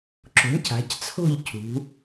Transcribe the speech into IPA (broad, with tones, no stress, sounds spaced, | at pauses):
ǁ o̤˩˥ ɳ c a̤˩˧ c t͡sʰ o̤˥˨ ʎ cʰ ṳ˩˧